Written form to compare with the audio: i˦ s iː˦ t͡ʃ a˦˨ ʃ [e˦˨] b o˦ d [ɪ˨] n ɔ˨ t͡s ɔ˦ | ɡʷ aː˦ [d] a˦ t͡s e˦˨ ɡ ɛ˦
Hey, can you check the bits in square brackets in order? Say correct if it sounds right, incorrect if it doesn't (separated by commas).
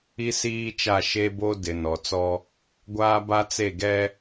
incorrect, correct, incorrect